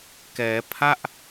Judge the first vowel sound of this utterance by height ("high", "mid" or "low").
mid